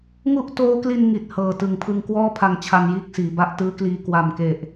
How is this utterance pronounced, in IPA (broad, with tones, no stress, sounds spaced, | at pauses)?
ŋ u˥˩ ʔ t oː˦˥ k l i˧ n ŋ i˨˩ t̚ h ɤː˨˩ t ɯ˨˩ ŋ pʰ ɯ˧ ŋ k w ɔː˥˩ pʰ a˧ ŋ t͡ɕʰ a˧ n j iː˦˥ k̚ s iː˩˦ b a˦˥ ʔ t ɯː˦˥ k l iː˧ k w a˨˩ m k e˨˩ ʔ